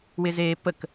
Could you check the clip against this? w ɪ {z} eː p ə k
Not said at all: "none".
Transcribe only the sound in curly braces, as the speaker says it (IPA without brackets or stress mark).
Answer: z